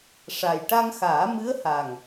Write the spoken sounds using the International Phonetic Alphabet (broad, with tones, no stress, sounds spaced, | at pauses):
ʂ a˨˩ j ʈ a˧ ŋ x aː˨˩˦ m ɨ˧˥ ə̯ h a˨˩ ŋ